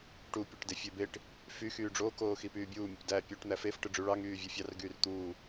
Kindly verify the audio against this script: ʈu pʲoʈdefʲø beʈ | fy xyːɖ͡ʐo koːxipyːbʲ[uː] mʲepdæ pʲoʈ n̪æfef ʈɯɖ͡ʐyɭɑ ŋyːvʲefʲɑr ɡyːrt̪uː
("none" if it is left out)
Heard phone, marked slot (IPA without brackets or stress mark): uː